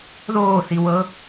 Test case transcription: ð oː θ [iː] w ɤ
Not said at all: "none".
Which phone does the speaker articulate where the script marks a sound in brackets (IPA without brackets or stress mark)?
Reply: i